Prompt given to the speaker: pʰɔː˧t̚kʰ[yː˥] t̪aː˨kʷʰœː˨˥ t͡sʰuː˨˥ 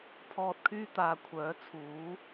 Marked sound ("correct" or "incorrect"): correct